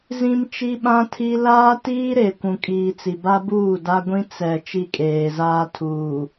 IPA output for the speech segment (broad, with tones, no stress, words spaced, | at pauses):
zĩ˦m t͡ʃi˦ɓã˦tʰi˦ laː˦tiː˦ɾe˨ kʷũ˨kʼiː˨ t͡si˨ba˦buː˦˨ da˦ ɡʷĩ˦ t͡sɛ˨ t͡ʃi˦kʼeː˨zaː˦ tʰuː˨